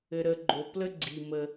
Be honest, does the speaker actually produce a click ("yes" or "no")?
yes